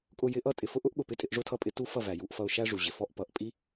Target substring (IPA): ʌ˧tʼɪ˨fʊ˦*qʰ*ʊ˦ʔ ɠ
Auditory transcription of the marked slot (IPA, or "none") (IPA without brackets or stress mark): ʔ